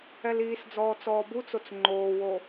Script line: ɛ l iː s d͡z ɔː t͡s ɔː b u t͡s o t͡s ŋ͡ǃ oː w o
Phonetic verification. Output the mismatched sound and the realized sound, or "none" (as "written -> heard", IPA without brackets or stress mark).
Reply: none